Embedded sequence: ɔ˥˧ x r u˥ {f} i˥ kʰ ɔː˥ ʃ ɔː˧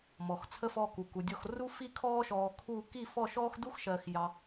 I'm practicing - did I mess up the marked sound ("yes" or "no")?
no